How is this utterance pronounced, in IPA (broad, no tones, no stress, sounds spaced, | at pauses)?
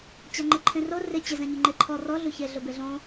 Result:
t͡ɕ a ŋ͡ǃ ɪ ǃʰ ẽ r o r ɪ t͡ɕ ɪ z ɛ̃ ɲ u ŋ͡ǃ e ǃʰ ɔ r ɔ ɮ u ç e ɮ ʊ b e ɮ õ